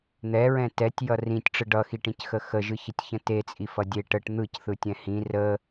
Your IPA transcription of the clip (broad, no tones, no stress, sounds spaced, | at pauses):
n̪ ɛ ɹ ɛ̃ t ɛ tʲ j ʌ r ĩ tʲ ʈ͡ʂ ɯ ɖ ʌ x i ʈ ĩ c x ə x ə ʒ ɯ ç ə tʲ ç ə̃ t e t͡sʼ i f ʌ dʲ e ʈ ə ʈ n̪ ɯ c θ ɯ tʲ ɛ̃ h ĩ r ə